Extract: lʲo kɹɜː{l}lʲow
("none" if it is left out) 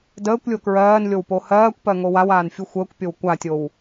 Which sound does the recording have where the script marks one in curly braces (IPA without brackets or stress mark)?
n